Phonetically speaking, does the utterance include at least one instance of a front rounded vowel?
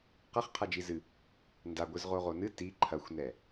no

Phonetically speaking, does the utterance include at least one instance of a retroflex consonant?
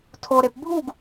no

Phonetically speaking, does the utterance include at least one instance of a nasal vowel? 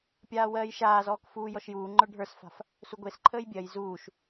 no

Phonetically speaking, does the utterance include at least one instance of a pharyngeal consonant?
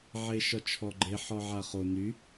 yes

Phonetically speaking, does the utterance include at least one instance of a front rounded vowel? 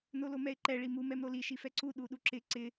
no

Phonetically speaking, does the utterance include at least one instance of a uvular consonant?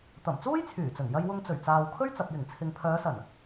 no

